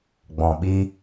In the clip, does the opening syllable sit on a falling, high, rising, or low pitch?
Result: low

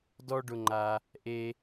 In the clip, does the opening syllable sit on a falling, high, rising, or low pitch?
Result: high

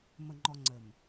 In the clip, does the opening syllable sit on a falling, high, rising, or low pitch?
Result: low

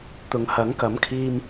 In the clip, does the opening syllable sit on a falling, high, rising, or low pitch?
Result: low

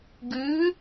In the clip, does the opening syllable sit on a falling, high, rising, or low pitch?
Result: rising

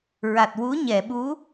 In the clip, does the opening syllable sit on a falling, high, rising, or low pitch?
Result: low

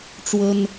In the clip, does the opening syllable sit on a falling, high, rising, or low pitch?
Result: high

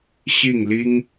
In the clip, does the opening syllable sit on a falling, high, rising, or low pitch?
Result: falling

